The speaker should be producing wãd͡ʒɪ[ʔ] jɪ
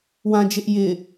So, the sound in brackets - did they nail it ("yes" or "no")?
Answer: yes